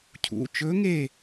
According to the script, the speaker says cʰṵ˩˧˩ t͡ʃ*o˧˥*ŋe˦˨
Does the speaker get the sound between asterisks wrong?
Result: yes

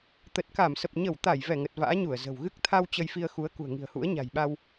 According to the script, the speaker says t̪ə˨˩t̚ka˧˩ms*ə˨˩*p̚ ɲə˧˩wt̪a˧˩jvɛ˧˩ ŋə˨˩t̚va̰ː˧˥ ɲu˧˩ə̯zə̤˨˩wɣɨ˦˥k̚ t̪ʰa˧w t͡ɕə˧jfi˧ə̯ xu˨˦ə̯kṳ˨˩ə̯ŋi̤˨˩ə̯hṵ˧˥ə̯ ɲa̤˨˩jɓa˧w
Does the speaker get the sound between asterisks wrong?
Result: no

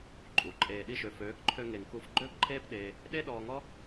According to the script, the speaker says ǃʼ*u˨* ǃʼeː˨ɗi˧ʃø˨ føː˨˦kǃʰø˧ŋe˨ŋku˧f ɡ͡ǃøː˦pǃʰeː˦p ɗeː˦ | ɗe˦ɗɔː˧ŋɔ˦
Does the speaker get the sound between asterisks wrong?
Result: no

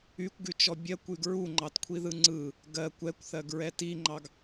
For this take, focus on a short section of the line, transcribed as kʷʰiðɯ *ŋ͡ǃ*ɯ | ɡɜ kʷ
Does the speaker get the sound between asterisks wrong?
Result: yes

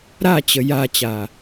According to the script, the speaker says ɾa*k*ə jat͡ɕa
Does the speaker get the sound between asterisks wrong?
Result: yes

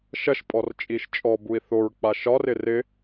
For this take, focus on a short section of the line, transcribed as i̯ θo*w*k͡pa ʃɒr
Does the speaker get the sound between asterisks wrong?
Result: yes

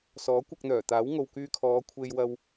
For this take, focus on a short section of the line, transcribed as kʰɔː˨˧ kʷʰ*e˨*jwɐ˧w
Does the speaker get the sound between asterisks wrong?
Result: yes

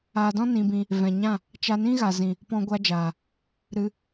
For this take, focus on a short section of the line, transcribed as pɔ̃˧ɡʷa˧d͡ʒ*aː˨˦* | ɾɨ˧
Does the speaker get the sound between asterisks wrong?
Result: yes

